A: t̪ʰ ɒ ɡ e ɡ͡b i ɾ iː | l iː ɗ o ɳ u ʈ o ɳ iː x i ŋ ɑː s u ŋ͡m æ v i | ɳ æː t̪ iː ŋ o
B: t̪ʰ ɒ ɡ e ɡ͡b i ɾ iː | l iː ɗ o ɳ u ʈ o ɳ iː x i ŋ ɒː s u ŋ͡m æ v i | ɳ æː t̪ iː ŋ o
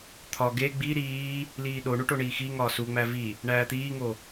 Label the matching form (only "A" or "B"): B